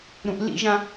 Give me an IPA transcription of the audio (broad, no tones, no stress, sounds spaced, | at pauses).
ɾ ũ ʔ l ḭ ʒ ã